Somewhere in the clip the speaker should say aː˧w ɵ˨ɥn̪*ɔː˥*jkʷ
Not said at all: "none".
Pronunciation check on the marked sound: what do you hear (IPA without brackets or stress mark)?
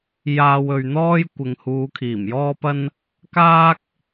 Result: ɔː˥